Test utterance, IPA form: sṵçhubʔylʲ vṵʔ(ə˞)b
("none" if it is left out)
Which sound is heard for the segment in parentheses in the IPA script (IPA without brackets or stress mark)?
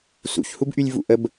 ə